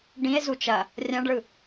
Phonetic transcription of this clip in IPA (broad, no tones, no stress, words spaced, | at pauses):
ɖĩe̯ zut͡ʃɐ | rʲãɖɭɯ